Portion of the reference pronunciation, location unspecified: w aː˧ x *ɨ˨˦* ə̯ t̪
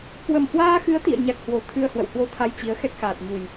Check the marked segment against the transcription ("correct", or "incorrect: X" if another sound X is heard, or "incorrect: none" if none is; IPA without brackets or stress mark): correct